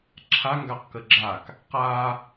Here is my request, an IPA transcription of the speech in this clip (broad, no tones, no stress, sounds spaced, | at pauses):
ǁʰ a ŋ ɡ a q k ə ɡ͡ǁ a k | q a